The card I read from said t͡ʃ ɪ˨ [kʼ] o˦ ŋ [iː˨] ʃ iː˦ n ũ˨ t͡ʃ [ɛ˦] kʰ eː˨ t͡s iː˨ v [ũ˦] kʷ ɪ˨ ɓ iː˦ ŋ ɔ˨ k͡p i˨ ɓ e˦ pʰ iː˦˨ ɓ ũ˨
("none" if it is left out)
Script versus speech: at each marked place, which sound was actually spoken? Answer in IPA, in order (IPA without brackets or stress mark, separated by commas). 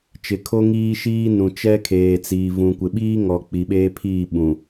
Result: kʰ, iː˦, ɛ˦, ũ˨